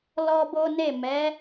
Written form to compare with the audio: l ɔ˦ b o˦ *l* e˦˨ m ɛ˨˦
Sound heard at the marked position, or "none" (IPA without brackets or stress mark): n